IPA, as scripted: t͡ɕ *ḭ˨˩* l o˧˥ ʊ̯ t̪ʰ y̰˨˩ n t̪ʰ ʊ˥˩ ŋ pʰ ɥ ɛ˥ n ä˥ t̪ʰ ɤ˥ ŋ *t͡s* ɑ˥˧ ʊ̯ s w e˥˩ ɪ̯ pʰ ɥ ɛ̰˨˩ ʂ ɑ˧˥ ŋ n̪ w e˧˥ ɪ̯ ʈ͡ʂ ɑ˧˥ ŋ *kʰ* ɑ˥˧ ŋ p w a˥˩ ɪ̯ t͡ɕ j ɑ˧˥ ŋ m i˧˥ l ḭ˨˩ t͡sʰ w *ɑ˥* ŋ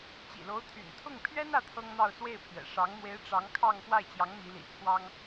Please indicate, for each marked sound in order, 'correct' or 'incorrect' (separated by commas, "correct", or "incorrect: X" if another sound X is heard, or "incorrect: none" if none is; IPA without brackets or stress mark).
correct, incorrect: n̪, correct, correct